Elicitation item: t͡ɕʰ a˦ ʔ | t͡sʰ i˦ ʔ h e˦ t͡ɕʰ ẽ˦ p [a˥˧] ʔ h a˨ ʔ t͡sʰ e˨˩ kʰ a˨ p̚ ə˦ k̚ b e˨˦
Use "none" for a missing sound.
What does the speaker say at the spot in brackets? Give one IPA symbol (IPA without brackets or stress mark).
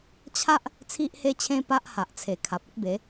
a˦